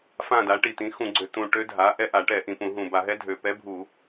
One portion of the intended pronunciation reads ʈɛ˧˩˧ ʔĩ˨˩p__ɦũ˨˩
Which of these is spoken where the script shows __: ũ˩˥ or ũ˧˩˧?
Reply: ũ˧˩˧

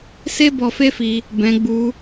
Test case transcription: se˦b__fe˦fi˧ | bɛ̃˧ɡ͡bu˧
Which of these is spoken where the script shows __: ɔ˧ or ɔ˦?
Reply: ɔ˧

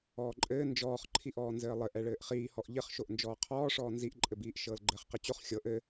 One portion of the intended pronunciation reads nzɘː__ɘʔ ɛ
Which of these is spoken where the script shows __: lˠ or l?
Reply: lˠ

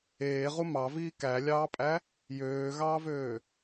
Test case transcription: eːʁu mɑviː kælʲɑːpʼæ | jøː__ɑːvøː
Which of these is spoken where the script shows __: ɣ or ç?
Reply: ɣ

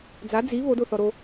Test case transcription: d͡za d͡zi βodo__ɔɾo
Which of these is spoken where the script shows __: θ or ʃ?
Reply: θ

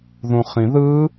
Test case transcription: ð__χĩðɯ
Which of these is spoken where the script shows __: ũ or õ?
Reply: ũ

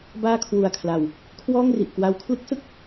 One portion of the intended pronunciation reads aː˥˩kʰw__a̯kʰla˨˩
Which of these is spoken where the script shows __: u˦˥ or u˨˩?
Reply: u˨˩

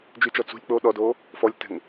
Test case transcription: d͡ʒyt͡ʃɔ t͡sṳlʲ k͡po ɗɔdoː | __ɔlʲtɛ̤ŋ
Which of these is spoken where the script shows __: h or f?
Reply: f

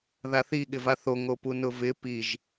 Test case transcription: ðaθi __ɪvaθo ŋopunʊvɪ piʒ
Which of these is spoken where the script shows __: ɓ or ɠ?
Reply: ɠ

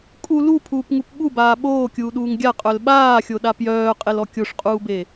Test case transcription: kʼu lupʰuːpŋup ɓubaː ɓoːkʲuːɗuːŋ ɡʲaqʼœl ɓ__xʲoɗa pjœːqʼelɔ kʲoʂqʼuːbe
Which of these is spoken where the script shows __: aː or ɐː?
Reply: aː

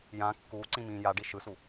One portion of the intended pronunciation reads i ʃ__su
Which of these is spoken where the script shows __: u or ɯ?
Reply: ɯ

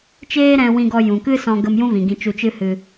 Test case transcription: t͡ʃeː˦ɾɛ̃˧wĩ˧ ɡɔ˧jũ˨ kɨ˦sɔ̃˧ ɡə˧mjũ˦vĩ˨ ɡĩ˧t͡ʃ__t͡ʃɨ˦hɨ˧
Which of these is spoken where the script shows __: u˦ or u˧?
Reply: u˧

